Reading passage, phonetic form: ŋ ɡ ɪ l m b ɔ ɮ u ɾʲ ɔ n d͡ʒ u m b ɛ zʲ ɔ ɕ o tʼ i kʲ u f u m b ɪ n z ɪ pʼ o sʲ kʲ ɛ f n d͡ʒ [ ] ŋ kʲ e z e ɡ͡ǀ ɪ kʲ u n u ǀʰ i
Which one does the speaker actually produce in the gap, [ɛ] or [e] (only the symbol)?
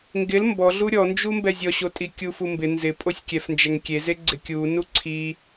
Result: ɛ